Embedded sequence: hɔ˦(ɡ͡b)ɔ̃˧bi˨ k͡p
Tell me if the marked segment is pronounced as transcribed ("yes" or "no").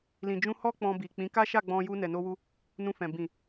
no